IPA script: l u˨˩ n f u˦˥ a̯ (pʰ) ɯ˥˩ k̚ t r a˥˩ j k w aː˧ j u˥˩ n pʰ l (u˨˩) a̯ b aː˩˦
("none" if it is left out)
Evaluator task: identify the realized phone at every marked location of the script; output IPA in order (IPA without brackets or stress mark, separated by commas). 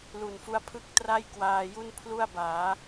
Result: pʰ, u˥˩